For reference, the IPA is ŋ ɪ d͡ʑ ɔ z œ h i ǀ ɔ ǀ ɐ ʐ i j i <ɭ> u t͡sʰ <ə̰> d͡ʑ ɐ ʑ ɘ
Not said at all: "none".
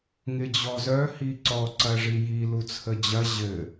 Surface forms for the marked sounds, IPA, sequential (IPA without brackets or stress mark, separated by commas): l, ə